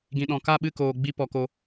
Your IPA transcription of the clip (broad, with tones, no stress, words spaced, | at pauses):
ɡĩ˨ɗɔ̃˨ ka˦˨ɓɨ˦˨koː˨ ɡ͡bi˧ pɔ˧ko˦